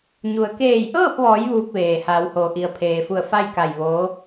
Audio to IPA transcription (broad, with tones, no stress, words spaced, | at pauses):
ɲu˩ə̯keː˧˩jʔɤː˥˨p̚ʋɔː˩˧j ʋuː˧k̚ʋeː˩ haː˩˧whoː˩ ʔi˩ə̯pʰeː˩fu˧˩ə̯ fa˥˨jka˧˩j ʋoː˧˥